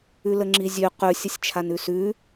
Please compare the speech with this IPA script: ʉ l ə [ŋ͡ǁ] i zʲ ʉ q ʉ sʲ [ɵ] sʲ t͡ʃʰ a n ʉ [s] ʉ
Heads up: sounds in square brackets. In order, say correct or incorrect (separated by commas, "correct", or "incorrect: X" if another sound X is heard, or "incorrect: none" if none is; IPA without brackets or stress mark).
correct, incorrect: ə, correct